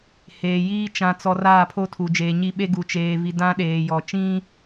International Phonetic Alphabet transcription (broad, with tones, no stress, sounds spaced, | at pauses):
h eː˨ j iː˦ t͡ʃ ã˨ t͡s ɔ˨ r aː˦˨ pʰ o˦ tʰ u˨ d͡ʒ eː˨ ɲ i˦ ɓ e˦ ɡ u˨ t͡ʃ eː˨ v i˨ d ã˦ ɗ eː˨ j ɔ˨ t͡ʃ ĩ˦